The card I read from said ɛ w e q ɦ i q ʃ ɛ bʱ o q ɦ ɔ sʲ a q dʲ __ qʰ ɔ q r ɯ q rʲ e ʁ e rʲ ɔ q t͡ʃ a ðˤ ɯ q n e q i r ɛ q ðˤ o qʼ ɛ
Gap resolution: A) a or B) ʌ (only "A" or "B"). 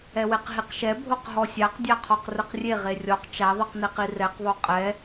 A